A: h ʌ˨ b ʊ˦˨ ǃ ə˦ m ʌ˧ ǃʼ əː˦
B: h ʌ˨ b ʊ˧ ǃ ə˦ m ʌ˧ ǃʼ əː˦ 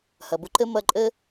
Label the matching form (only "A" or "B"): B